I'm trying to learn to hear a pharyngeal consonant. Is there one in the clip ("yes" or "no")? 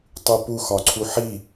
yes